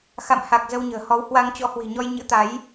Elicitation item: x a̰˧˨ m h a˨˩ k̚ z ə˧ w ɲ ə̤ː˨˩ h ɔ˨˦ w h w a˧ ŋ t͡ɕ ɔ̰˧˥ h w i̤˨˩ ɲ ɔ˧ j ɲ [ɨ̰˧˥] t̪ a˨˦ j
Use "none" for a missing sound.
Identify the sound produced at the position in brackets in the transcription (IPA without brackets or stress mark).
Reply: ɨ̰˧˥